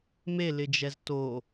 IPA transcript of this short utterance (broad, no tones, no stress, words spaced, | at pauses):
melɪd͡ʒɛz to